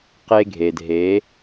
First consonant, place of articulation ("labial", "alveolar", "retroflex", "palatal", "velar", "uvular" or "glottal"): uvular